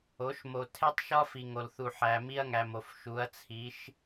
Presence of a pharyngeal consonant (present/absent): present